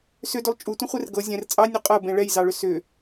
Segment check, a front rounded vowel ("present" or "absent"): present